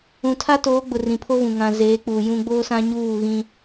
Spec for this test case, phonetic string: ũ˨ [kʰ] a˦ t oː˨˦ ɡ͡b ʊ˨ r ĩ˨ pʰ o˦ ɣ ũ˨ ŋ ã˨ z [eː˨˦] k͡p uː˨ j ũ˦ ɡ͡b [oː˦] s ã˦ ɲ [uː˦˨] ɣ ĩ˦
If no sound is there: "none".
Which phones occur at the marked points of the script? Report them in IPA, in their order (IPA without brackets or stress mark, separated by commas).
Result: tʰ, eː˨˦, oː˦, uː˦˨